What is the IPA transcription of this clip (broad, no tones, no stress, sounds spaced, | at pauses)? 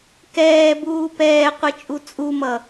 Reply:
k ɛː b uː p ɛː qʷ ɯ t͡ʃʼ u t͡sʼ u m ʌ